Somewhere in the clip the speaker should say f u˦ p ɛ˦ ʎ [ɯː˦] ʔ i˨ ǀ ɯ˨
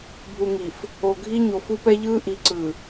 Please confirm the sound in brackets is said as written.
yes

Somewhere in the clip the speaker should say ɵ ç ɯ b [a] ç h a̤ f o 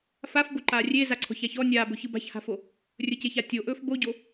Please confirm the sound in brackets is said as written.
no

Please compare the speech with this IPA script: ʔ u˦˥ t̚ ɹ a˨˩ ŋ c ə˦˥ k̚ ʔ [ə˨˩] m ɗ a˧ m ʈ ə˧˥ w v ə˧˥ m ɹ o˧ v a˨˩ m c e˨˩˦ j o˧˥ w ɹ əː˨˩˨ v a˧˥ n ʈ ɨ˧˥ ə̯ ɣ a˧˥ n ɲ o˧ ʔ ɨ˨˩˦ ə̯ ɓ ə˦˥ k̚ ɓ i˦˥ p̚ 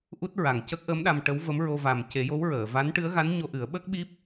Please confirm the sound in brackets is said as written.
no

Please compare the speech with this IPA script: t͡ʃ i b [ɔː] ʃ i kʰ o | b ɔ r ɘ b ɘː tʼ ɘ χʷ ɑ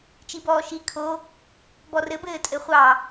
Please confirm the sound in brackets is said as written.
yes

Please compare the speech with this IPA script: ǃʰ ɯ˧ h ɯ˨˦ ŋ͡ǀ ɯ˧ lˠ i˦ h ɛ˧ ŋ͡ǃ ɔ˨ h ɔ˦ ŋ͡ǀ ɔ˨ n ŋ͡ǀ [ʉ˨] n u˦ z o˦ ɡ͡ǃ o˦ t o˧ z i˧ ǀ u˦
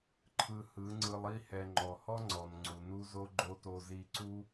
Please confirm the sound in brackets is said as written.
no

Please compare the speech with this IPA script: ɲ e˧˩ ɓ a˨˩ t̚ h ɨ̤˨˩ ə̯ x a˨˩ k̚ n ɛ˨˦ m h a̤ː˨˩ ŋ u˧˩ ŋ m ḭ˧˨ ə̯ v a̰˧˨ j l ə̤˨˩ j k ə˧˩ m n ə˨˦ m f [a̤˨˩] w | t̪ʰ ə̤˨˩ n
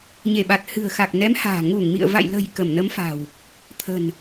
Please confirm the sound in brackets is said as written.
yes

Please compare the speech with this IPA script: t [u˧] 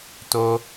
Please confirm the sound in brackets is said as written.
no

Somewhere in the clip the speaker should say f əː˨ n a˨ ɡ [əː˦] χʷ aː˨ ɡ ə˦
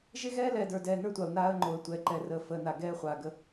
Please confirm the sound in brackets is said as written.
no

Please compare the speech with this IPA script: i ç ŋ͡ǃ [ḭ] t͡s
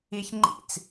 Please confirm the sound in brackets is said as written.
yes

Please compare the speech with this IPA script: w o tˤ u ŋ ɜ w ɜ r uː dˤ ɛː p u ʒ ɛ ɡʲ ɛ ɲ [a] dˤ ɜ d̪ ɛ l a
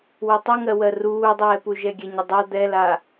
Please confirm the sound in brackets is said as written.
no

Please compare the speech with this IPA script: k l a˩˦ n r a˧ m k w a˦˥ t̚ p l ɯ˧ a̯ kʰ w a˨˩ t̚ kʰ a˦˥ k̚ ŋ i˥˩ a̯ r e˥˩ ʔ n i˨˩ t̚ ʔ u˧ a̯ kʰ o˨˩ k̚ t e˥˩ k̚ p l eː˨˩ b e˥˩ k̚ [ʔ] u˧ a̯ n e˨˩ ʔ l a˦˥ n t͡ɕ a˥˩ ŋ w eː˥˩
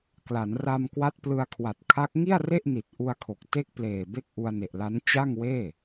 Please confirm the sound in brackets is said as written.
yes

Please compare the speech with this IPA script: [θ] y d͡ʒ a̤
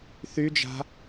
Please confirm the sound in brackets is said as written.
yes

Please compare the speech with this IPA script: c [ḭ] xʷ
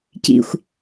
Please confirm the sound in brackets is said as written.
yes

